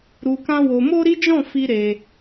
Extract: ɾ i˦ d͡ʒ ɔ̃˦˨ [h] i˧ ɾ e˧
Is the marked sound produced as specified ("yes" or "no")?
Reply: no